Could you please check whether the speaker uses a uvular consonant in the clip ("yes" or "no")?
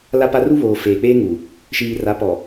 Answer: no